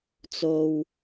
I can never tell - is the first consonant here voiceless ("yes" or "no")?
yes